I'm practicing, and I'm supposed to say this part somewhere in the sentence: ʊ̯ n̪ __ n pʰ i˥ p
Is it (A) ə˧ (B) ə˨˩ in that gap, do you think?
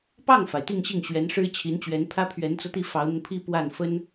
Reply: A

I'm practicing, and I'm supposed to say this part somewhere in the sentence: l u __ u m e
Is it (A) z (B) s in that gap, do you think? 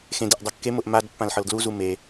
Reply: A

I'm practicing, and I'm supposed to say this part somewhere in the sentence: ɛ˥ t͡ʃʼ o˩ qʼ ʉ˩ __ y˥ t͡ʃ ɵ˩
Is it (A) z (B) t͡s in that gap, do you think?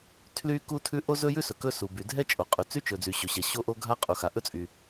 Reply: B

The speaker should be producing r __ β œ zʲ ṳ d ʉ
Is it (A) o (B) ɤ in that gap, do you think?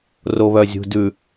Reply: A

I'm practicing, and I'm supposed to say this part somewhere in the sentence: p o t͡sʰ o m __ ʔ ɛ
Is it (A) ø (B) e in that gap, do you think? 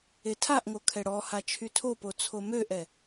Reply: A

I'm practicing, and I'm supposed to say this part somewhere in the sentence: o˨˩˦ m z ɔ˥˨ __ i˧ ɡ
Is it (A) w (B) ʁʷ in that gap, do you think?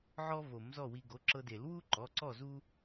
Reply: A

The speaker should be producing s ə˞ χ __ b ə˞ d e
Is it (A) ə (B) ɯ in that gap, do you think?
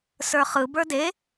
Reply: B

